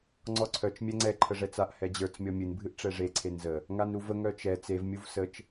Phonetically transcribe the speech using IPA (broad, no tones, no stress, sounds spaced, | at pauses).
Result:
ŋ͡ǀ ɔ ǀʰ œ t͡ʃ mʲ ɛ ŋ͡ǀ ɛ ǃʰ ə ʐ ɛ t͡s a ʔ h ɛ d͡ʑ ə˞ t͡s mʲ ɔ mʲ ɨ n bʱ ɨ ʔ ʈ͡ʂ ɛ ʐ e ǀʰ e n z ə | ŋ a n ɾ u v ə ŋ œ t͡ʃ ɛ t͡s e v mʲ u v s ə t͡ʃ